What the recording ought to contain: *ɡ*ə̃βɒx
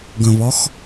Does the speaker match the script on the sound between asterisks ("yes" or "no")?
yes